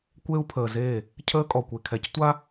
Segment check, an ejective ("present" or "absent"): present